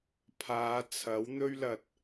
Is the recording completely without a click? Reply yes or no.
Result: yes